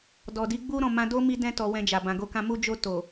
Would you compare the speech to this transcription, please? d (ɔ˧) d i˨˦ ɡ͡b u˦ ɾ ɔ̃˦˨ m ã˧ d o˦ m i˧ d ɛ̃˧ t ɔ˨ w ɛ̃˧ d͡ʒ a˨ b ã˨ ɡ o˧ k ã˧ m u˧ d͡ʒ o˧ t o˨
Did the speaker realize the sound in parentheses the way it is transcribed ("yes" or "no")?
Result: no